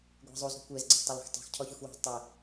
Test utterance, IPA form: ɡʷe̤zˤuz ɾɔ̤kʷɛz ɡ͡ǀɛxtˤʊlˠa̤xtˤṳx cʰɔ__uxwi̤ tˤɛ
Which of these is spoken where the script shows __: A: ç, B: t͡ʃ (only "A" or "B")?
A